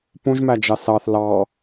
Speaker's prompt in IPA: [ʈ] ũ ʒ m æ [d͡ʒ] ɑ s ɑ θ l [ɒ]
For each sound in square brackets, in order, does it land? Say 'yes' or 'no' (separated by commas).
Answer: no, yes, no